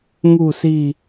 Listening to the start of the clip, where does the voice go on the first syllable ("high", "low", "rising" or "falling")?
low